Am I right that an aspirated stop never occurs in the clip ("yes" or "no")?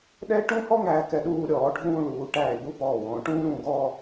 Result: yes